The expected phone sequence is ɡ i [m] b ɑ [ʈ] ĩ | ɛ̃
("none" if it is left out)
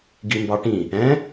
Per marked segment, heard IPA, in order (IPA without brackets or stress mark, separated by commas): m, ʈ